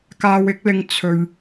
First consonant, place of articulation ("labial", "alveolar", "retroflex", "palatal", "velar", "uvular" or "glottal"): velar